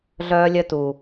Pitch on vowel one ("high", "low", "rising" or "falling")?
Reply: high